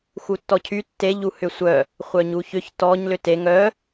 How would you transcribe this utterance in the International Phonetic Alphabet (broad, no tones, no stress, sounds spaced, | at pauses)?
x u tː ɔ cʰ y tː e ʎ u h ʏ sʷ œ | χʷ œ ɲ u ç ʏ ç t ɔ ɲ l ʏ t e ŋ œ